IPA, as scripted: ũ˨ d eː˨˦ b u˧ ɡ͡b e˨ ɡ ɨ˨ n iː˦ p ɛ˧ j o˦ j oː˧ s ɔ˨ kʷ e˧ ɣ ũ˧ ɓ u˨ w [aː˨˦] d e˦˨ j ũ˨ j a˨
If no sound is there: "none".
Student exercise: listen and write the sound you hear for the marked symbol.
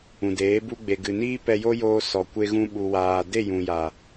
aː˨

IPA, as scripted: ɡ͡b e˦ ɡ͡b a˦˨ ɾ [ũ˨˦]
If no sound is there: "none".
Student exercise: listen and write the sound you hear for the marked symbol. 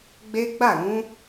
ũ˨˦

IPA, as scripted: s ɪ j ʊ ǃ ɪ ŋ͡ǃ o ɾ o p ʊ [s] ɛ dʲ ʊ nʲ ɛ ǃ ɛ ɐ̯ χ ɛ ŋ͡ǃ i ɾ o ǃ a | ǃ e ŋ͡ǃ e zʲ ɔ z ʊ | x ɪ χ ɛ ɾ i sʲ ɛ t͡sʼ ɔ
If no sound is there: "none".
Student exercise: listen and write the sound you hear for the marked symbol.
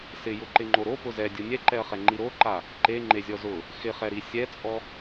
z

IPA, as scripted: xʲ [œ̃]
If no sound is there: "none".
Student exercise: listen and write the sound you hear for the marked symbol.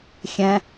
ɛ̃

